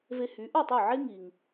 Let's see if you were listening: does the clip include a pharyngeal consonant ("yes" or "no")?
yes